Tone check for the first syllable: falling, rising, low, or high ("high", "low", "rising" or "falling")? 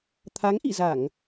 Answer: rising